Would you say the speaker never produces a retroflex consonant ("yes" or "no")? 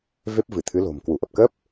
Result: yes